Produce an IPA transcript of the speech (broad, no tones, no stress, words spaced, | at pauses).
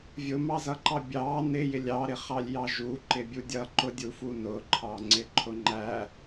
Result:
vʲʊmɑzʌǃɑ bʲɑ nɪ jɪlʲɑɾɪχɑlʲ jɑʒu ǃɪbʲudʲʌ ǃʊdʲufunʊ ǃʰɑŋ͡ǀɪǃʰʊŋ͡ǃæ